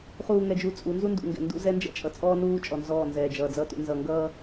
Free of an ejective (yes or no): no